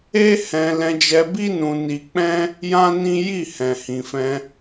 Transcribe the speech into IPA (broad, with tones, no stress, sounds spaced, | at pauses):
e˦ h ɛ̃˧ l ɛ̃˧ d͡ʒ ɛ˧ b i˦ n ũ˧ n i˧ k͡p ɛ̃˦ | j ã˦ n ĩ˦ j i˦˨ h ɛ̃˨ h ĩ˨ f ɛ̃˧